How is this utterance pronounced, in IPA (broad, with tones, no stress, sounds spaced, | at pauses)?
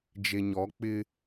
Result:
d͡ʒ e˨ ɲ ɔ˨˦ k͡p ɪ˦